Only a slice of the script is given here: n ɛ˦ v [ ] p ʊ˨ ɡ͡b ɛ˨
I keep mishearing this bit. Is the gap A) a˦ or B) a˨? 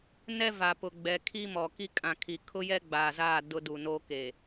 B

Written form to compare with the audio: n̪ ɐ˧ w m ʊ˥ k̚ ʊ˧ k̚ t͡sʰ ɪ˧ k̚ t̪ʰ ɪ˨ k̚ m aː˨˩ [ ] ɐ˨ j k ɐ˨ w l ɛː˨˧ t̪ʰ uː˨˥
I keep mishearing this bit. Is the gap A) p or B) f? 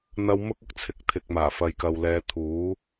B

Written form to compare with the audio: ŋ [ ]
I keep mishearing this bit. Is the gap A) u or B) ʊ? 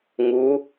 A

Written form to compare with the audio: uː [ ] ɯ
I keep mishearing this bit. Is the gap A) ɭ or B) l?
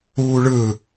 A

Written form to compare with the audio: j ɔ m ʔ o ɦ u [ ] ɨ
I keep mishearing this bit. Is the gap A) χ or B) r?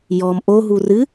B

